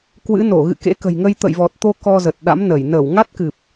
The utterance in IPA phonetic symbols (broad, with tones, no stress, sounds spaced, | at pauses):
k w ɨ̰˧˥ n o˧˩ ɣ ɨ̰˧˨ k ḛ˧˥ k ə̤˨˩ j ŋ ə˧ j t̪ ə̰˧˨ j v ɔ˨˩ t̚ t̪ o˧ k ɔ˧ z ə˨˩ t̚ ɗ a̰˧˥ m n ə˧˩ j n əː˧˩ w ŋ a˦˥ t̚ k ɨ˨˩ p̚